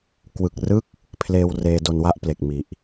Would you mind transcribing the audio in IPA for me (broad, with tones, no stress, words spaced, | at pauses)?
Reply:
kwɯ˨˩k̚rɯ˦˥k̚ | pʰleː˧wreː˧ do˧nwa˦˥ʔ ple˨˩k̚ mi˨˩ʔ